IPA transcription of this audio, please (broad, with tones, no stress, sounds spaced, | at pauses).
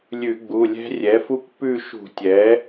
lʲ ʉ˧˩˧ ɡ͡b u˩˧˩ lʲ ɛ̤˦˥ rʲ ɛ˩˥ f u˦˥ kʷ p ʉ˦˨ ʃ ṳ˧˩˧ tʲ ɛ˩˥